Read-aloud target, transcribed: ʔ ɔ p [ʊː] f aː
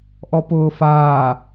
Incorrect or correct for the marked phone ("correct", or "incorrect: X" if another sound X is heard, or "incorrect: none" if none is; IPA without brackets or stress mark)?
correct